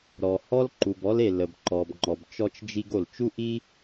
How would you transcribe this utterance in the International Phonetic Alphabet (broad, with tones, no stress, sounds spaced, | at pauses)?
ɾ ɔ˩ h ɔ˥ l ǃ u˩ b ɔ˥ l e˩ l ə˩ b ǃ ɔ˩ b ŋ͡ǃ ɔ˩ b t͡ʃ ɔ˥ t͡ʃ d͡ʒ i˥ ɡ o˩ l t͡ʃ u˥ ʔ i˥